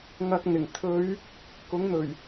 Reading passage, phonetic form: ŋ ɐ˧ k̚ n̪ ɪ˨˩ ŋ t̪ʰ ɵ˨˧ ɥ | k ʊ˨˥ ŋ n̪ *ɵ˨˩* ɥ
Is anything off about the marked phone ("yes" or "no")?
no